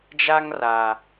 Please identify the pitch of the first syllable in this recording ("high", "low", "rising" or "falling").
high